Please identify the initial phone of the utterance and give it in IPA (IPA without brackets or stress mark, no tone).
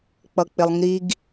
k͡p